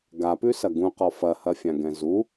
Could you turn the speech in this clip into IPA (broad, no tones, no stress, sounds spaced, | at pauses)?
ɡ a p ʉ s ɐ ɡ ũ q ɔ f ɐ h ɐ fʲ ã ɡ ɛ̃ z u